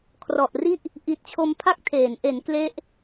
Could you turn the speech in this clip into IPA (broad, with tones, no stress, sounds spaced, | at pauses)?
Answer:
kʰ r ɔ˨˩ ʔ r i˥˩ ʔ | ʔ i˨˩ t̚ t͡ɕʰ o˧ m pʰ a˥˩ k̚ tʰ eː˩˦ n ʔ e˩˦ n k l e˦˥ ʔ